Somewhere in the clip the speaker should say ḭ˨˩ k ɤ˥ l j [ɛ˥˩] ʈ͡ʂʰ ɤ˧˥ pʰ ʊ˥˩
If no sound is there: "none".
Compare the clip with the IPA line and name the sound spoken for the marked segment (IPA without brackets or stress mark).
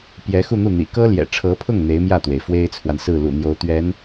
ɛ̰˨˩